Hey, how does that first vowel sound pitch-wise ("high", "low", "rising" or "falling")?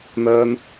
high